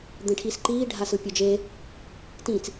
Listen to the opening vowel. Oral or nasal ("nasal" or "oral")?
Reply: nasal